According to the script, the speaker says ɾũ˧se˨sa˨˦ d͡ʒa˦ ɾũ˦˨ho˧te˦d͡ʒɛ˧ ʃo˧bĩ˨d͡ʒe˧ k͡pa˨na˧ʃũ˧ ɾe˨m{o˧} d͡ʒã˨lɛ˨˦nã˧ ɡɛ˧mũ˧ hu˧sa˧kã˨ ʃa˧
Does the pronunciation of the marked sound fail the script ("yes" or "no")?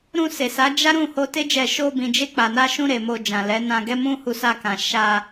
no